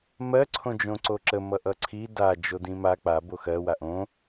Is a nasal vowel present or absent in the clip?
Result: present